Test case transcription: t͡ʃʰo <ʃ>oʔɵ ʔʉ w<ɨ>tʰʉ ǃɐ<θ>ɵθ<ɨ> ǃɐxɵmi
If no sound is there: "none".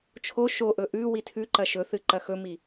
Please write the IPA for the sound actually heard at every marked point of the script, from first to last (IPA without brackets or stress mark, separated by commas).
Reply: ʃ, i, ʃ, ɨ